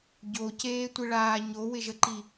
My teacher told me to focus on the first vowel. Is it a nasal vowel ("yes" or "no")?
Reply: no